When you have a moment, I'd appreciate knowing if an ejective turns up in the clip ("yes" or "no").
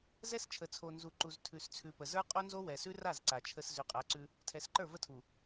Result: yes